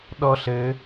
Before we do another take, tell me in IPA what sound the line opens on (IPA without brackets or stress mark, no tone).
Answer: ɗ